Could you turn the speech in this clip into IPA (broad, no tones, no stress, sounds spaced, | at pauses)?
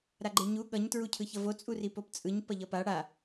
ɾ a ɡ͡ǃ e ɲ u ɠ ʌ ɲ t ɹ u cʰ ɯ ç ʌ v o t͡sʼ u r i p o p t͡sʼ ɯ ɲ p ʌ ʎ ʌ p a ɽ a